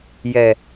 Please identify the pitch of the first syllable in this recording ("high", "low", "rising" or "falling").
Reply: low